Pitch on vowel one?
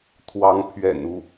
rising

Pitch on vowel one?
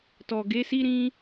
low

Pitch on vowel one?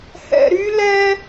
high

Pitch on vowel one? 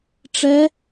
rising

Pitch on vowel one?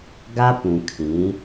high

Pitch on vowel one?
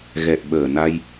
low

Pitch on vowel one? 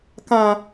low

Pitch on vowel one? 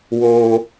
high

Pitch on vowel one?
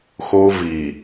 high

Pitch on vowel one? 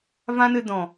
high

